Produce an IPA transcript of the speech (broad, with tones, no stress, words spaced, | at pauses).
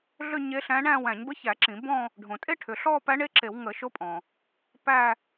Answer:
ɮʏ˥˧ ɲe˧˥ɬæ̃˧˥ɳæ̃˥˧ wæ̃˧˩˧ɲbə˧˥çæ˧˩˧ ǁĩ˧˩˧bɔ̃˥˧ | ɖʱõ˩tʼe˥˧ʈʰʏ˩ ɬɔ˥˧pæ˧˥ɳe˧˥ǁe˧˩˧w ŋə˧˩˧ʃo˧˥pʼɔ̃˩ | pæ˥˧